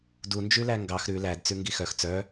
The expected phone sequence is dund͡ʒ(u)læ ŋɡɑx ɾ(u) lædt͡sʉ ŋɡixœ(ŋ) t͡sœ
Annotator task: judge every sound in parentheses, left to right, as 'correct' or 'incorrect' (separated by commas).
incorrect, incorrect, incorrect